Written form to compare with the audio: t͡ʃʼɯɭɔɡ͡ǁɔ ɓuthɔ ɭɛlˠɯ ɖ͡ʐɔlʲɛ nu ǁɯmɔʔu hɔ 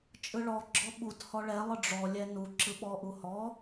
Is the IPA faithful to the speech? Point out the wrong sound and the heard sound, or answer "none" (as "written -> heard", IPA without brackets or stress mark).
m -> ɓ